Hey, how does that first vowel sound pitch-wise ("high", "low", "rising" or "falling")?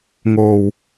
low